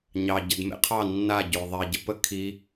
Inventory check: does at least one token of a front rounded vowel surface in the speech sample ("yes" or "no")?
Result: no